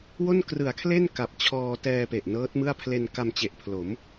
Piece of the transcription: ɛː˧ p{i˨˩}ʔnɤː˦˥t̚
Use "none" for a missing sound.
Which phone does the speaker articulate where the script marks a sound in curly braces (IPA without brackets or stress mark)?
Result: e˨˩